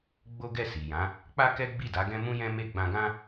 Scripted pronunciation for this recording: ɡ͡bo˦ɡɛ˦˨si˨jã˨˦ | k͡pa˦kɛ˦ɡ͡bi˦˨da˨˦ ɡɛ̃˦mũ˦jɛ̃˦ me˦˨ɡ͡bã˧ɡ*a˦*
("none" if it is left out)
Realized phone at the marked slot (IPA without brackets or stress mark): ã˦